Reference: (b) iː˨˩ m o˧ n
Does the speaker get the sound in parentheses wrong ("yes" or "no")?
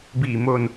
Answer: no